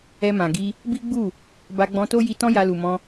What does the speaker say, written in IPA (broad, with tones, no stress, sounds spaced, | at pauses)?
ɛ˧ m ã˨ ɡ i˧ | b i˦ ɡ͡b u˦˨ | b a˧ ɡ͡b ɔ̃˧ t o˦ j i˧ t ɔ̃˦ j a˧ l u˨ m ɔ̃˧